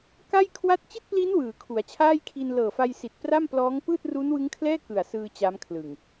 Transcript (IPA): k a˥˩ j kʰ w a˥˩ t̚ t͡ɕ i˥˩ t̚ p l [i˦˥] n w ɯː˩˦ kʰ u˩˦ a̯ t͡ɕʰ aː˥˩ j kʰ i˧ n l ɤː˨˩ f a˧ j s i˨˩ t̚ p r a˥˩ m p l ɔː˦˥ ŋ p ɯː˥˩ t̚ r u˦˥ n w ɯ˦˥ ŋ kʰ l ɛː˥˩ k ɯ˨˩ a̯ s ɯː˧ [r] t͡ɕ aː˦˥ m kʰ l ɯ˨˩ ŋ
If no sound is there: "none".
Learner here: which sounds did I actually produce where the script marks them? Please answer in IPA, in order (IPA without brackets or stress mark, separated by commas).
i˦˥, none